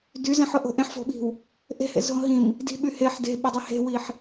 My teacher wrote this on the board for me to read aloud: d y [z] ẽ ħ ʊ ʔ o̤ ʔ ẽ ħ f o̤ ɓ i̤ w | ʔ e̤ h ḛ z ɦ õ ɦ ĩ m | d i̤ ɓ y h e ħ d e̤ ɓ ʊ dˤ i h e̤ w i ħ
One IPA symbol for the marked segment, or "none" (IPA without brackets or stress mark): z